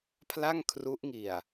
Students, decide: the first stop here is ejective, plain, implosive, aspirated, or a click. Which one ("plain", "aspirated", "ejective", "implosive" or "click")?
aspirated